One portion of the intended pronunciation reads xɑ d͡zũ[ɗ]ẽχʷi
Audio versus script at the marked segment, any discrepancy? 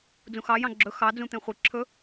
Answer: yes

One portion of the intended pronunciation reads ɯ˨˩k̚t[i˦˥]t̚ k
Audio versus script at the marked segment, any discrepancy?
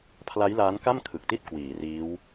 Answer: yes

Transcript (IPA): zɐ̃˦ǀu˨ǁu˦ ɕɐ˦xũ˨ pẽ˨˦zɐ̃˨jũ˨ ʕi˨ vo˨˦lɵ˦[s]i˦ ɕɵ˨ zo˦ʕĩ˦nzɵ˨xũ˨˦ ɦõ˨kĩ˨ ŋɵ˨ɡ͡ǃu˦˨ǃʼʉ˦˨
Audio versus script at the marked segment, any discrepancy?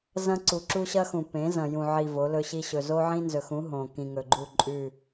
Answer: yes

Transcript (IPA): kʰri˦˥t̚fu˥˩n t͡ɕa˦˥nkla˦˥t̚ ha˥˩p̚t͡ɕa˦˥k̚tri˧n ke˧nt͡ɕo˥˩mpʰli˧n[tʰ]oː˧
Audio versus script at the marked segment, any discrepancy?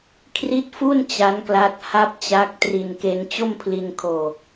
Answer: yes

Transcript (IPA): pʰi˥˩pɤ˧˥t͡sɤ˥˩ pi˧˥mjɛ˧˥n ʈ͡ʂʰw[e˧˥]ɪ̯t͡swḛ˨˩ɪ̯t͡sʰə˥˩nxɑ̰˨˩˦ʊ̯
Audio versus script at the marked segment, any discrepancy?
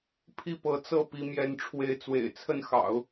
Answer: no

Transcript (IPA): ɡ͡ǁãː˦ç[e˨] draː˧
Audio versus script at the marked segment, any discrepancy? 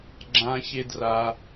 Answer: yes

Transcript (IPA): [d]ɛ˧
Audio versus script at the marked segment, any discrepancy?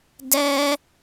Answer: no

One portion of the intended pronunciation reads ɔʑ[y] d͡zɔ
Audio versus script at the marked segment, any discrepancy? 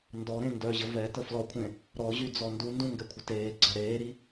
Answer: no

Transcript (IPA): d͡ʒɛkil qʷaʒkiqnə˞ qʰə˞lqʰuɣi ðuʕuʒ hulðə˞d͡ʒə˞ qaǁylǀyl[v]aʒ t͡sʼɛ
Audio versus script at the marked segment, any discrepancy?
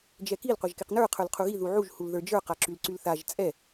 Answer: yes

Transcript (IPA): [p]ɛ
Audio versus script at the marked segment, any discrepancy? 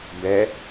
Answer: yes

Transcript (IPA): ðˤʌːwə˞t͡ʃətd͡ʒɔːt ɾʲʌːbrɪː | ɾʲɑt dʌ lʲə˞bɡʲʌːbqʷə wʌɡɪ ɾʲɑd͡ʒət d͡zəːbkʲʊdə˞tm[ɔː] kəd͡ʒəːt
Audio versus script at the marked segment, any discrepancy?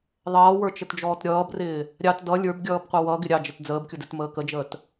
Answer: yes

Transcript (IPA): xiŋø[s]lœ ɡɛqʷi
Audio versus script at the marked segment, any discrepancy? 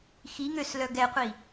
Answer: no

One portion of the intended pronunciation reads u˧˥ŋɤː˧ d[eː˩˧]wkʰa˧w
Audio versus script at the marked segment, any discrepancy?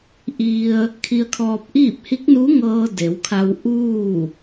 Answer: yes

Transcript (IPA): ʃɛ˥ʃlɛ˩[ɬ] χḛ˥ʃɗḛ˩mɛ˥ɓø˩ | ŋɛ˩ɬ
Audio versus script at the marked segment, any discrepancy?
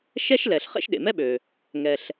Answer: no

